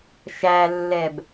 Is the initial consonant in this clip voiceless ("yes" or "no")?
yes